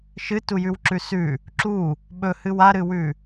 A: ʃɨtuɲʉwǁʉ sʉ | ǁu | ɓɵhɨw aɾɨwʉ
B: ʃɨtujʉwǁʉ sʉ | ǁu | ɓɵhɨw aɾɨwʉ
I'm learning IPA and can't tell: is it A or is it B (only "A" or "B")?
B